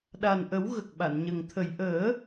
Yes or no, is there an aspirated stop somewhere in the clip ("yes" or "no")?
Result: yes